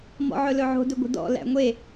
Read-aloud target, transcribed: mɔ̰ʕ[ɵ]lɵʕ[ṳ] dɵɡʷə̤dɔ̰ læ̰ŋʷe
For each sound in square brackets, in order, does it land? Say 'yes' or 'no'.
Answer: yes, no

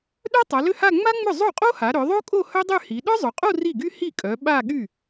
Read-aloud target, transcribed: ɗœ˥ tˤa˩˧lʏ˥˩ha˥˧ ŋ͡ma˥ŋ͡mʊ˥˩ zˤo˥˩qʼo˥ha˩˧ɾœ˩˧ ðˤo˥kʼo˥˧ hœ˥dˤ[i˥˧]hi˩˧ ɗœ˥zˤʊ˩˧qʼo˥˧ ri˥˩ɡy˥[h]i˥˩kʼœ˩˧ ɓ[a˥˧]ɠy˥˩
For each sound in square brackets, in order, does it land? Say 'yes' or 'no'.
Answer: no, yes, yes

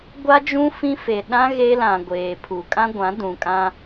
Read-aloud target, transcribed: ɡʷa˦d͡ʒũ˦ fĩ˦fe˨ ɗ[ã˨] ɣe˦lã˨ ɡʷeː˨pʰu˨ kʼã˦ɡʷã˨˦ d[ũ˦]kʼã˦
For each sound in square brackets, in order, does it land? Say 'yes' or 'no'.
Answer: no, no

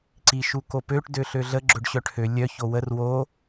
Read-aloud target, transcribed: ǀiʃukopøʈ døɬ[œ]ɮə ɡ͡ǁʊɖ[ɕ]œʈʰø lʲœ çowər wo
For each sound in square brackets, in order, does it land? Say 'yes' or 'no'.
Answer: no, yes

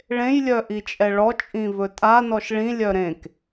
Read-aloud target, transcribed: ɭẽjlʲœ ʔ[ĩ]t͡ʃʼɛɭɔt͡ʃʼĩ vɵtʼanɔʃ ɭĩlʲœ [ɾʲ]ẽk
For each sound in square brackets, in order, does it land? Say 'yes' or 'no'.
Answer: no, no

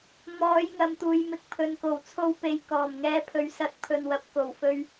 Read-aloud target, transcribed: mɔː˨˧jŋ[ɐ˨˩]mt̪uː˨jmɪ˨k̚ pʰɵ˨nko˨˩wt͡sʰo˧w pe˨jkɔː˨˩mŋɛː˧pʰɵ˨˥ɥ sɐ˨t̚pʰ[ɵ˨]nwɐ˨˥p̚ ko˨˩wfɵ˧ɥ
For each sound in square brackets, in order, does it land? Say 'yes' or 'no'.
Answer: no, yes

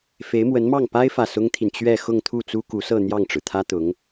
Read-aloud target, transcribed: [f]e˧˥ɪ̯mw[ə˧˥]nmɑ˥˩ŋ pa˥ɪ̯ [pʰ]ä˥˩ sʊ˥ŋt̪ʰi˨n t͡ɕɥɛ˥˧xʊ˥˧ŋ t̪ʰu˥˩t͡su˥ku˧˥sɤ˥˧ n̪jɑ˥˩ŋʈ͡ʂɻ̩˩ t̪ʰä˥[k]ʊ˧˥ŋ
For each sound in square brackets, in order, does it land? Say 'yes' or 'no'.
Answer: yes, yes, no, no

